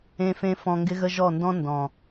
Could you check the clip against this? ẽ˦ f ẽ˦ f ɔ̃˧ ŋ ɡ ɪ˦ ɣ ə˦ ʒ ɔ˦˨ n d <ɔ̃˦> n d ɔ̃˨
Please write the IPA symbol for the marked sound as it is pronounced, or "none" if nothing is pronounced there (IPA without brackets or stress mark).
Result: ɔ̃˦